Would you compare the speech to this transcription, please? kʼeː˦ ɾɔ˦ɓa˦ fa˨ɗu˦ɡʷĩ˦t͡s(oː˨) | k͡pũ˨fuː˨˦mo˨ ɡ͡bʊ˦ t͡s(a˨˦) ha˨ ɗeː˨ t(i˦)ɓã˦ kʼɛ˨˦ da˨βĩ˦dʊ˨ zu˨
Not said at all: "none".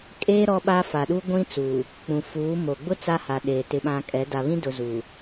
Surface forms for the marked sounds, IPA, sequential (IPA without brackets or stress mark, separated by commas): uː˨, a˦, ɪ˦